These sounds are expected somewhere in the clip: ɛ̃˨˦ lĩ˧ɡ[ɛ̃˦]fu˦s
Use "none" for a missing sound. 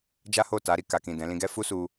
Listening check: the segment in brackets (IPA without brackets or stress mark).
ɛ˦